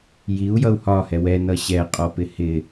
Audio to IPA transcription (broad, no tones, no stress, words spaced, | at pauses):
jiu̯jʌu̯ hɒhɛ wɛnʌ ɕɛqʼɔpɪ hɪ